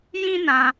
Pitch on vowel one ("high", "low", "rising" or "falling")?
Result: high